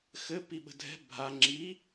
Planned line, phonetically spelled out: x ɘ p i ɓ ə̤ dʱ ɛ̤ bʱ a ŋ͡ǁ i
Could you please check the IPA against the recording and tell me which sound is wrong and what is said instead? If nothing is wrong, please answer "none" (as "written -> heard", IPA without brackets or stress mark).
none